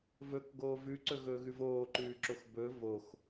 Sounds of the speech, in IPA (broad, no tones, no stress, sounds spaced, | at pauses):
v ɵ k ɡ oː v ʉ ǀ ɵ ɣ ɵː ɣ ʉ v oː ǃ ʉː ǁ o x b ɵ v o x